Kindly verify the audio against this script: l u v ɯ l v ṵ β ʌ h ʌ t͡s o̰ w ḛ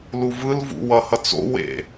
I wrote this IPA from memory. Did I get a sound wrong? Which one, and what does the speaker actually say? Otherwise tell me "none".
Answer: β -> w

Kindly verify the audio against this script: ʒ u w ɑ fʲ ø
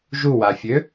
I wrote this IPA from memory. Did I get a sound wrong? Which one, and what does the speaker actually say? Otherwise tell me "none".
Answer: ɑ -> a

